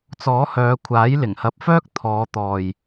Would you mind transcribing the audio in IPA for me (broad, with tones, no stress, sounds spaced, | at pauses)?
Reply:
t͡s ɔː˨˥ h œː˨˧ kʷʰ aː˨˥ j l ɪ˨˩ ŋ h ɐ˨ p̚ f œː˥ k̚ t̪ʰ ɔː˨˧ t̪ ɔː˨ j